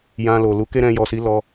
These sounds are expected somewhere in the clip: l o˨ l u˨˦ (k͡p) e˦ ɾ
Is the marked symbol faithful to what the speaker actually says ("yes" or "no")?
no